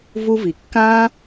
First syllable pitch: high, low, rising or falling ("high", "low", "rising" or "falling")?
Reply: high